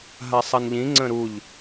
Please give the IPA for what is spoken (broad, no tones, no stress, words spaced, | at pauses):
ɦasˤɐnʎĩ ŋ͡ǀə̃ɾuʎ